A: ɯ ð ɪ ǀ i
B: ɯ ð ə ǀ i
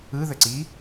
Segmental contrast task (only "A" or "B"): B